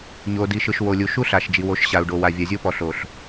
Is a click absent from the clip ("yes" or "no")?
yes